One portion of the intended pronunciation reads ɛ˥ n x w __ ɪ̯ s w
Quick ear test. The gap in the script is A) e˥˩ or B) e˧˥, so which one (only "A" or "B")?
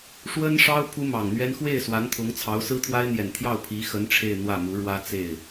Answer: A